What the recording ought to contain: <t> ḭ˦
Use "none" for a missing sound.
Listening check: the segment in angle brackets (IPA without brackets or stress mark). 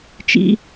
t͡ʃ